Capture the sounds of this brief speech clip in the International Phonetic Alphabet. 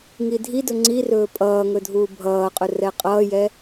ŋ i dʱ i d ɵ ŋ͡ǀ i r ɵː pʼ ʌː ŋ ɵ dʱ uː bʱ ʌː qʼ ɵ r ɛ qʼ ʌː j ɛ

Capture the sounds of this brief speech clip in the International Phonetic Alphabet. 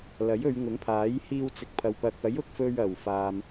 l ɐ˨˥ j ɵ˨˧ ɥ ŋ ʊ˨˥ ŋ pʰ aː˨˥ j h iː˧ w t͡s ɪ˨˥ k̚ pʰ ɐ˨ w p ɐ˨ k̚ ɐ˨˥ j ʊ˧ k̚ f ɵ˧ ɥ ɐ˨˩ w f aː˨ m

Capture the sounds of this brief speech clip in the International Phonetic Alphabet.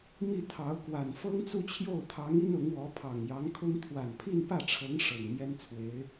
m i˥˩ t̪ʰ ɑ˧˥ ʊ̯ k w a˨˩ n f ɤ˥ ŋ t͡s u˥˧ t͡ɕʰ j o˥˩ ʊ̯ t̪ʰ ɑ˧˥ ŋ i˥ n ʊ˧˥ ŋ w ɔ˧˥ pʰ ɑ˨˩ ŋ j ɑ˧˥ ŋ kʰ ʊ˥ ŋ t̪ʰ w a˨˩ n pʰ i˥˧ n p ä˥˩ ʈ͡ʂʰ ɤ˧˥ ŋ ʂ ɤ˨˩ ŋ m j ɛ˥ n t͡sʰ w e˧˥ ɪ̯

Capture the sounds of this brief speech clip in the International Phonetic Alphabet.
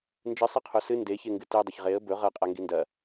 n d͡ʒ ɨ sˤ e qʰ o s ɨ n d e ç e ŋ ɡ ɨ t i dˤ ɐ ç ʁ e ə̯ b ɵ ʁ ɐ qʼ a ŋ ɡ i n d ɐ

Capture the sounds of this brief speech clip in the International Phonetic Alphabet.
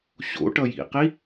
ɕ o̰ ʈ ʌ j ḭ q i

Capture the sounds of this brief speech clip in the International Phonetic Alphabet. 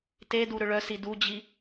t e d u ɾ ʏ ɭ œ s i d u d͡ʑ i

